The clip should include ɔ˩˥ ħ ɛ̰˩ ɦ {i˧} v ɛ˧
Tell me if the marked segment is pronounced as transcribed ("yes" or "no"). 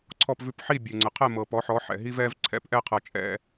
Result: yes